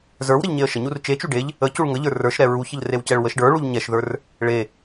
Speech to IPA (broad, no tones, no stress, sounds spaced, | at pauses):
z ə˞ w ɾ ə ʎ ɲ e ə̯ ʃ ə ɲ u r t͡ʃ e t͡ʃ u ɖ e ʎ | ə c u ɭ ŋ ə ʎ ə˞ r ə˞ ʃ ɾ ɛ ɹ u ç ə ʎ r e w c ɛ ɭ w ə ʃ ɖ ə˞ ɭ u ʎ ɲ ɛ ʃ ð ə˞ r | ɭ e